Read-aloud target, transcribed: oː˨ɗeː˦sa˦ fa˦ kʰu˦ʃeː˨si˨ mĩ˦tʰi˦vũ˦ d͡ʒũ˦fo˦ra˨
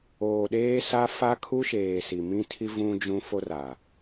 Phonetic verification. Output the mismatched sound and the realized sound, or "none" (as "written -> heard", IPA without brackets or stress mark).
none